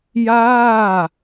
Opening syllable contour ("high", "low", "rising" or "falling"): falling